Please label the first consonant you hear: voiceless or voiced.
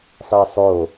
voiceless